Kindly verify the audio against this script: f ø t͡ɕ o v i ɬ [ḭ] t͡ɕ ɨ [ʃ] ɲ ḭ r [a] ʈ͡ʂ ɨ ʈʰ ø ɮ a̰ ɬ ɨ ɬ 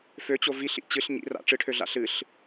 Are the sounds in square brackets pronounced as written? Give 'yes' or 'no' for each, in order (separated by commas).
yes, no, no